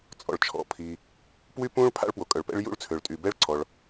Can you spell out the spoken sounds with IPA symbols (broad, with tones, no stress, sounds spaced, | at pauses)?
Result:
t͡sʼ ɔ̰˩ ɭ t͡ʃʰ ɔ̰˩ pʰ i˩ | p w y˥ p ũ˥ ɭ pʰ a̰˥ ɭ p w o˩ kʼ œ˩ ɭ p ɛ̰˥ ɭ j ṵ˥ ɭ t͡sʰ ø˩ ɭ tʼ y˩ b ɛ˥ ɭ ǀʰ ɔ˩ ɭ